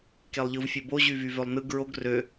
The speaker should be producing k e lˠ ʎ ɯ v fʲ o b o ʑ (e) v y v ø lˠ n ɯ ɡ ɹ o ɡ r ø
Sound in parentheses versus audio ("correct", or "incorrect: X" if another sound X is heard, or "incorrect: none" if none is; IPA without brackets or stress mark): incorrect: y